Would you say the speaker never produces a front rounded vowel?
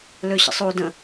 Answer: no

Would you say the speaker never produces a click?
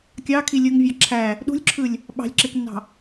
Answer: no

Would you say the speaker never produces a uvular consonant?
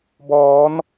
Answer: yes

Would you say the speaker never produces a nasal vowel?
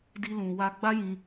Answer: no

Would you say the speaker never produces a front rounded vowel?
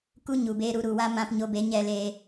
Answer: yes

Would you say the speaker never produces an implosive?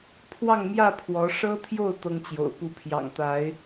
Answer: yes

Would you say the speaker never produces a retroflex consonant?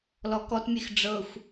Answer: no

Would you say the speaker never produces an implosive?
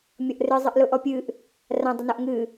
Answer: yes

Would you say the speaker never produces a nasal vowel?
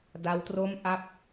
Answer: yes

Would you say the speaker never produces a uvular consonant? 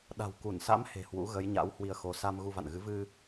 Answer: yes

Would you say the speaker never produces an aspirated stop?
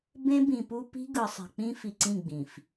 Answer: yes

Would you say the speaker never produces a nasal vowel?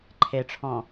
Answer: no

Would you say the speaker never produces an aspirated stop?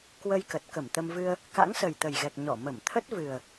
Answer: no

